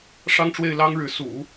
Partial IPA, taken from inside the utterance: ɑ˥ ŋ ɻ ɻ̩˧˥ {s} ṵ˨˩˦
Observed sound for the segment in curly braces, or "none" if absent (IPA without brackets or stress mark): s